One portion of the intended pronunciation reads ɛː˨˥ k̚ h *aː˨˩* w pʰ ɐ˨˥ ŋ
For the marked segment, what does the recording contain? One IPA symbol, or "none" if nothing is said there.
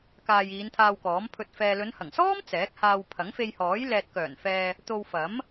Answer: aː˧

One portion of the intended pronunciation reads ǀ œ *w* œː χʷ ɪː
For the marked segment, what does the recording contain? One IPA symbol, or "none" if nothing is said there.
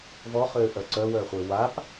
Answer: w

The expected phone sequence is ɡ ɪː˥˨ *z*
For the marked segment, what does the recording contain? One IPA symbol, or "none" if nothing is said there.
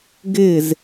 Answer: z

